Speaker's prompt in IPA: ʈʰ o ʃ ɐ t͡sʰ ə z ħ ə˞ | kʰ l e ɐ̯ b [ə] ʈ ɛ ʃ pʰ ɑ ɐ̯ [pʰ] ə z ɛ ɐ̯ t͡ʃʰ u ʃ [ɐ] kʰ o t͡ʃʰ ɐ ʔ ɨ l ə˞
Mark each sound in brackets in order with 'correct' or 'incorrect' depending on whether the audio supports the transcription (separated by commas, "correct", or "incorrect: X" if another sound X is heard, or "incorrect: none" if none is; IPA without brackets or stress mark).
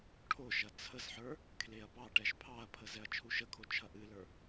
incorrect: ɑ, correct, incorrect: ə